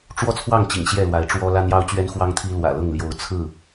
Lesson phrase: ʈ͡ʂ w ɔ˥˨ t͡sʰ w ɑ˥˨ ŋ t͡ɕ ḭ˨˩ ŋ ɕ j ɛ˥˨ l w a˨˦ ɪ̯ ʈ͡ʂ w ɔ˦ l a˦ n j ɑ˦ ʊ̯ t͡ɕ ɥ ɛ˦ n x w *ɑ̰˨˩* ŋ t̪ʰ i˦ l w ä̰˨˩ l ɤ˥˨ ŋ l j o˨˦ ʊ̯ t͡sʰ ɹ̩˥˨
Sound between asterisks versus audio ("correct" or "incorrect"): incorrect